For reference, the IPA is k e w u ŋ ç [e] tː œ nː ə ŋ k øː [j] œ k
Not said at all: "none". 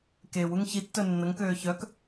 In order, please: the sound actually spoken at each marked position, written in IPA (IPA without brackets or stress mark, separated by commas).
i, ç